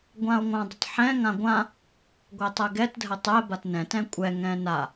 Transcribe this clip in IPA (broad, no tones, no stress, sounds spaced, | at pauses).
ɡʷ ã o̯ ŋʷ ã dˤ ə t ħ ɛ̃ ŋ ã ɡʷ ã | ɡʷ ɛ tˤ ɛ ɡ ɛ t dʱ ə tˤ ɛ b a t n ɛ̃ t ɛ̃ kʷʼ ɛ ŋ ɛ̃ n a